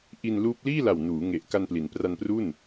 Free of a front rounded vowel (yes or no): yes